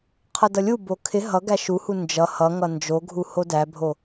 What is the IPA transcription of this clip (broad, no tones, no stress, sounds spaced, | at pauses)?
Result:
qʰ ʌ d ʌ lʲ u b o kʰ ɪ ɦ ʌ ɡ æ ʃ u h u n d͡ʒ ʌ h ʌ ŋ ʌ n d͡ʒ o ɡʱ u h o d æ bʱ o